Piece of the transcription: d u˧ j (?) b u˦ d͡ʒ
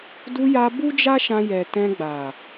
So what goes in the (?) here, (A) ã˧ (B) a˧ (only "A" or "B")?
B